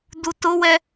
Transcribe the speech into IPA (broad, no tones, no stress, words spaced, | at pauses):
dutʊwɛ